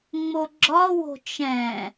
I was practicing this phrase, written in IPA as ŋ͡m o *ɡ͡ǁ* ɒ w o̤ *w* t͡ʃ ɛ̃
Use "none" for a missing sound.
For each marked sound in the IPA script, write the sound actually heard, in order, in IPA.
ɡ͡ǁ, none

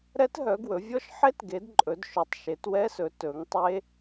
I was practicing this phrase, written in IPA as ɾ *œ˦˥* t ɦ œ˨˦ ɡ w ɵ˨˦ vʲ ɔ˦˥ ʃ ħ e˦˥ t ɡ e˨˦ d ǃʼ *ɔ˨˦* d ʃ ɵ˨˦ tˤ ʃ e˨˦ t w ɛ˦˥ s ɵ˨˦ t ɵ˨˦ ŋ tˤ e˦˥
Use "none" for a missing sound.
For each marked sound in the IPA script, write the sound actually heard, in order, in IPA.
ɛ˦˥, ɵ˨˦

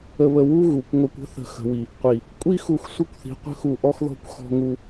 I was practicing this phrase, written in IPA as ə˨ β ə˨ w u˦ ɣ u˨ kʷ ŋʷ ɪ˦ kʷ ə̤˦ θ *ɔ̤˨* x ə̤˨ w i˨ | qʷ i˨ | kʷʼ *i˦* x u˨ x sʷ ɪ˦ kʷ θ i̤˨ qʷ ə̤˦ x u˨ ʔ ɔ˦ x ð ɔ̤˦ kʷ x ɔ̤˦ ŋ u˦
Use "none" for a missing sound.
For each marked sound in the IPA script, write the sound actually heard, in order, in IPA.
ə̤˨, i˦

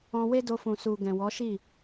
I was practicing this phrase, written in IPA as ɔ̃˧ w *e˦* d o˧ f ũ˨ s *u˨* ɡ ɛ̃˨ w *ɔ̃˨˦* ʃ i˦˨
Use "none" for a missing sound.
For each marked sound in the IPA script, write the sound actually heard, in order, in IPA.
e˦, u˨, ɔ˨˦

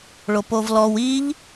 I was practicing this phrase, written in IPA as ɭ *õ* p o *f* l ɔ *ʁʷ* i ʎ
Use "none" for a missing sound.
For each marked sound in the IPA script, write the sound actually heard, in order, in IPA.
o, v, w

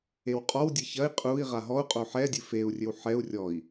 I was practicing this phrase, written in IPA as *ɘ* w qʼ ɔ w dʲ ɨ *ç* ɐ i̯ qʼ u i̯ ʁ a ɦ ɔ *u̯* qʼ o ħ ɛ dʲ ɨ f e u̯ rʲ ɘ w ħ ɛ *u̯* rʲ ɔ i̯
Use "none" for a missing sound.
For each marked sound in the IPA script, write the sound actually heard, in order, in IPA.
e, ç, u̯, u̯

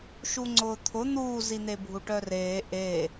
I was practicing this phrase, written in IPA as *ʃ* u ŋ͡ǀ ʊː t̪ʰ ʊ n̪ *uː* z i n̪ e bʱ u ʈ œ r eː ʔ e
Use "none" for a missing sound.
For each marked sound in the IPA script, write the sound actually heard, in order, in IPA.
ʃ, uː

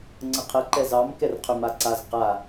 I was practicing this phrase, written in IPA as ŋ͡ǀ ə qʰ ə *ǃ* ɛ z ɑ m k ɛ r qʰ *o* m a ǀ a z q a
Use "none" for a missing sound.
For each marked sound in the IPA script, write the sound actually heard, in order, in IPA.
ǃ, ɵ

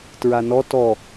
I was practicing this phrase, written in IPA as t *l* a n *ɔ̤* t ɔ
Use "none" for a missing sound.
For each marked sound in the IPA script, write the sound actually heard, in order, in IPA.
ɹ, ɔ

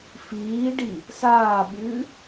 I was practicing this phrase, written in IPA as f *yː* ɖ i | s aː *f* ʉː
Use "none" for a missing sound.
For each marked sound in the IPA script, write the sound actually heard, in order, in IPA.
iː, ɓ

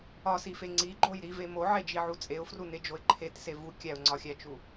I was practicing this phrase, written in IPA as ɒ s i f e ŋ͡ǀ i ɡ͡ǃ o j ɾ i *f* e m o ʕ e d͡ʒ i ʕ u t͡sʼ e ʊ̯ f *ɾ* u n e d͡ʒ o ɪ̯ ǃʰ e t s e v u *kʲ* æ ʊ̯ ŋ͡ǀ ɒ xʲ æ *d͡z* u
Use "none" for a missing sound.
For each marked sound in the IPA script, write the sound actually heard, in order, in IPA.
v, r, kʲ, t͡ʃ

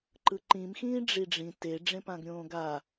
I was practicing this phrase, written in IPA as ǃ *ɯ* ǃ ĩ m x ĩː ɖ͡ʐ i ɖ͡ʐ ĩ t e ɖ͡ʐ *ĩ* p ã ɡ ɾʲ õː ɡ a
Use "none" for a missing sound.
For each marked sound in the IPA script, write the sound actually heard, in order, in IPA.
ɯ, ẽ

